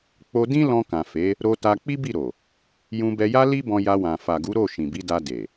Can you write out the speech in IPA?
k͡p o˧ d ĩ˦ l ɔ̃˧ k ã˨ f e˨˦ | ɾ o˧ t a˧ k͡p i˦ b i˦˨ ɾ o˨ | j ũ˧ b ɛ˧ j a˦ l i˦ b ɔ̃˧ j a˧ w ã˨ f a˨ ɡ u˨˦ ɾ o˦˨ ʃ ĩ˨ b i˨˦ d a˧ d e˨

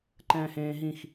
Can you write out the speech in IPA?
ǃ ɛ̃ː h ẽː ɦ ĩ x

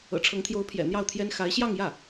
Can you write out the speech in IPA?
ɤ̰˨˩ ʈ͡ʂʰ ɤ˧˥ ŋ t̪ʰ j o˧˥ ʊ̯ pʰ j ɛ̰˨˩ n̪ j ɑ˥˩ ʊ̯ t̪ʰ j ɛ˥ n x a˧˥ ɪ̯ ɕ j ɑ˥˧ ŋ j ä˥˩

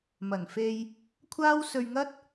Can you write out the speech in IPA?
m ɐ˨˩ n f e˧ j | kʷʰ aː˥ w s ɵ˧ ɥ ŋ ɐ˥ t̚

